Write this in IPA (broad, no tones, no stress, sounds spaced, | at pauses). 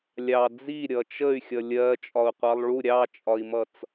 lʲ ɑ d͡z i ɾʲ ʌ t͡ʃ ə y̯ xʲ ʌ lʲ ɜ t͡ʃʼ ɒ u̯ qʷ ɑ lˠ ɭ u ɾʲ ɑ t͡ʃʼ ɒ i̯ m ʌ t͡s